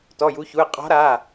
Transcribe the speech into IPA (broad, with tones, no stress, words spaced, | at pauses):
tɔ˩˧˩ju˨˦çu˩˧˩e̯ qʼɔ̤˨˦ɾa˩˧˩